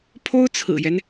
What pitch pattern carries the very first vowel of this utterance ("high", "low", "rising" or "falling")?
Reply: high